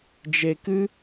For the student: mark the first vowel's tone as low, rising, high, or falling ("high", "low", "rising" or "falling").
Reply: low